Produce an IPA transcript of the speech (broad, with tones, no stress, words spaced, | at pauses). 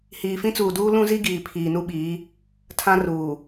hiː˨fĩ˦t͡suː˨duː˦ lũ˦zi˦ ɡiː˨pʰiː˨nu˦ɓiː˨˦ | tʰã˦ruː˨